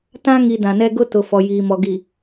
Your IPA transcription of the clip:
t ã˦ ŋ i˨ d ã˨ n ɛ˦ ɡ ʊ˦ t ʊ˨ f ɔ˨ j iː˨ m ɔ˨ ɡ i˨

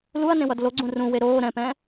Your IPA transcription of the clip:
l u ɐ̯ n ẽ w ʌ d l o ɡ͡ǀ ũ r ũ w e ɾ oː ɾ ɛ̃ p ɛ̃

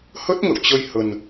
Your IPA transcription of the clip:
h ə˦˥ t̚ ŋ ə̰˧˨ w t͡ɕ ə˧ j h ə˧ n

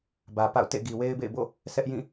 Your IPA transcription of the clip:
b ä˨ p a̰˦˨ ʊ̯ t ḛ˦˨ ɡ i˨ w e˦ ɪ̯ b ḛ˦˨ ɪ̯ b o̰˦˨ | sʰ ɛ˦ ʔ j ĩ˦˨

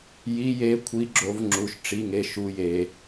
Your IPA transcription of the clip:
j i˨˦ j e˨˦ kʷʰ i˨˦ ɡ͡ǁ o˨˦ v ŋ͡ǁ u˨˦ ʃ ʈ͡ʂ i˧˥˧ ŋ e˧˥˧ ʃ u˧˥˧ j e˨˦

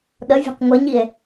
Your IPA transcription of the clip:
ɗ ə vʲ o̤ q ŋʷ ə ɲ i e̯

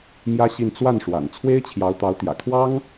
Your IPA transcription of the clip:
m j ä˥ ɕ i˥˧ n t͡s w a˥˩ n ʂ w a̰˨˩ n t͡sʰ w e˥ ɪ̯ t͡ɕʰ j ɑ˧˥ ʊ̯ t̪ ɑ˧˥ ʊ̯ t̪ j ä̰˨˩ kʰ w ɑ˥ ŋ

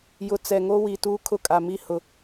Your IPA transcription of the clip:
j ʊ˨ t͡s ɛ˨ ŋ o˦ w i˨ t uː˦ kʰ ʊ˦˨ kʼ a˨ m i˦ h ʊ˦

